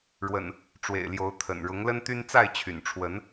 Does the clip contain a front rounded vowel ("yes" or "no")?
yes